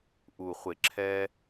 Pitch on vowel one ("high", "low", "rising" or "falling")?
low